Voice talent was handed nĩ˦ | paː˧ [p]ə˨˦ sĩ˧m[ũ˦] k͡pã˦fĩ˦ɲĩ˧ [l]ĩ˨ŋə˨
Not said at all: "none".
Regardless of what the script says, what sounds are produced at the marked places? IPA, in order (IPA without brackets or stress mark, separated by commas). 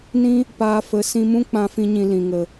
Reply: f, ũ˦, l